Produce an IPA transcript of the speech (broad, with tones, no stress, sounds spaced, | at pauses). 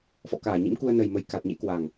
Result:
f ɔ̰˧˨ k aː˧˩ ɲ ḭ˧˥ m k u˧ ə̯ n ə˨˩ j m ə˨˩ j k a˨˩ t̚ ɲ ḛ˧˥ k w a˨˩ ŋ